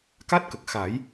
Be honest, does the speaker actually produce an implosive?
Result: no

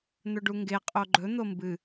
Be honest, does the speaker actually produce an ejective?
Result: yes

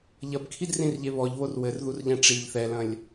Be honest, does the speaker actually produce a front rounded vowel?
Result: no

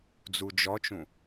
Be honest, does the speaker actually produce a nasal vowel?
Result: yes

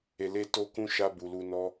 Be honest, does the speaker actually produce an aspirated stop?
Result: no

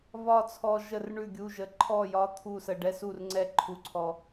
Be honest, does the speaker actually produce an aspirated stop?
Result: yes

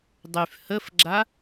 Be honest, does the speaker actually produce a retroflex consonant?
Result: no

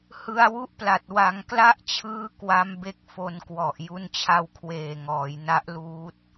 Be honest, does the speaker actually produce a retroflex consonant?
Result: no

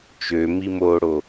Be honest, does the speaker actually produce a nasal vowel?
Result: no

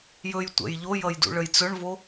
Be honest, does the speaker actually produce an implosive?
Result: no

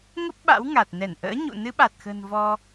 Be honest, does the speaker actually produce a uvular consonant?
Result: no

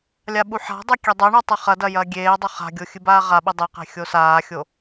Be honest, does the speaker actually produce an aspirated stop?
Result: no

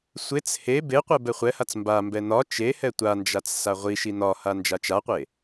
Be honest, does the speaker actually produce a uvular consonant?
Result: yes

